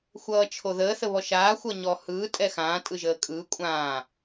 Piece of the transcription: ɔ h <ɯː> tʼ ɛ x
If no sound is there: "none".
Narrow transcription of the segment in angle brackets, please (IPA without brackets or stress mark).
ɯː